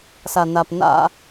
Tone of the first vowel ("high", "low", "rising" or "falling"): low